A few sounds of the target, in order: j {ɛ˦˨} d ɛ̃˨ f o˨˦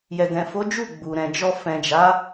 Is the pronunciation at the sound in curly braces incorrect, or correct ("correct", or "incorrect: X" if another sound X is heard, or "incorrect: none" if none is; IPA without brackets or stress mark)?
incorrect: ɛ˨